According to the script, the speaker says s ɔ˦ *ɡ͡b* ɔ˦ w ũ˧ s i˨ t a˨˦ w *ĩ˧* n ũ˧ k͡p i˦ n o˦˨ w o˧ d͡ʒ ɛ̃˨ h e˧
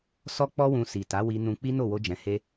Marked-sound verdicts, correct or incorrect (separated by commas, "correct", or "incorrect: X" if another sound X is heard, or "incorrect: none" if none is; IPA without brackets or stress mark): incorrect: k͡p, incorrect: i˧